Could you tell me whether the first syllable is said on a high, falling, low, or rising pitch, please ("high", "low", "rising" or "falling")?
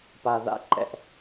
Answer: low